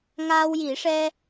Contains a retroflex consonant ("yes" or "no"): yes